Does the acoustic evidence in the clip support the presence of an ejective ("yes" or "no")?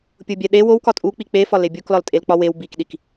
yes